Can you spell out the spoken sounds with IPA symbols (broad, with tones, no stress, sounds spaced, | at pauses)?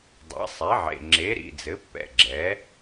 dˤ ɛ̰˩˥ sˤ ɛ˩˥ ʕ ḛ˩˧˩ ŋ͡ǁ e˩˥ ɾ ḭ˩˧˩ d͡z ɘ˩˥ pː ɛ̰˩˧˩ ɡ͡ǁ ɛ˩˥